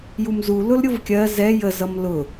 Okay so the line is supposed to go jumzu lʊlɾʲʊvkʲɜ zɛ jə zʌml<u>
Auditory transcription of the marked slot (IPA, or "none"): ʊ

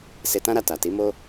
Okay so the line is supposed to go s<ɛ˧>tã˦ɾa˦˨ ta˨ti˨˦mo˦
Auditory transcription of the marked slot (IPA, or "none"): e˧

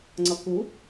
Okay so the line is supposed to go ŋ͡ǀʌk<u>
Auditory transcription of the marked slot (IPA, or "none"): u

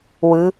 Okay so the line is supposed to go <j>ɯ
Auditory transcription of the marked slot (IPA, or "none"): w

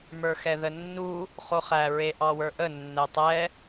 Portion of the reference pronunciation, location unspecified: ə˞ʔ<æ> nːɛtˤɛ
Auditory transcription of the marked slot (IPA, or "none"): ə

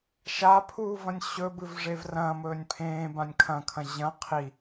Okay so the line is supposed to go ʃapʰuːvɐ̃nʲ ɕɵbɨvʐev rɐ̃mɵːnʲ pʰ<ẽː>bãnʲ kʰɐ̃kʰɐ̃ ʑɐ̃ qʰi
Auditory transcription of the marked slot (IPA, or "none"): ẽː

